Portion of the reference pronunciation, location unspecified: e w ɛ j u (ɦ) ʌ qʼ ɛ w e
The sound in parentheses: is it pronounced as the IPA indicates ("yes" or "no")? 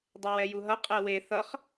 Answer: yes